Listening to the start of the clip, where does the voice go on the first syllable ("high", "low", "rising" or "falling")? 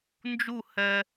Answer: falling